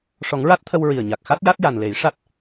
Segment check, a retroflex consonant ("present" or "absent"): present